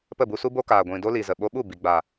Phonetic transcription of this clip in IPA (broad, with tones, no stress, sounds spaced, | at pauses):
p ə˦˨ b u˧ s u˦ b o˦ k aː˨ ɡʷ ĩ˨ d o˦ l i˨ z ə˨ ɓ o˧ ɓ u˦˨ b i˨ ɡ͡b a˨